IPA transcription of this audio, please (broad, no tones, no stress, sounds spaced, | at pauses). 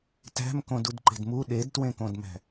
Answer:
t æ̤ m k õ d u d ǃ e̤ d m u ɗ e d t w ẽ k õ d m æ̤